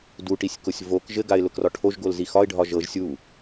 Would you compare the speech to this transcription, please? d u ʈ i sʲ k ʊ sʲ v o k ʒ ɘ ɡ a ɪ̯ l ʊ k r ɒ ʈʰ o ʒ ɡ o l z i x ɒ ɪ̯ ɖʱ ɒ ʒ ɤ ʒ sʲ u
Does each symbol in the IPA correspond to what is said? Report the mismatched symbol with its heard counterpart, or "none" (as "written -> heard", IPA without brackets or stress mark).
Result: none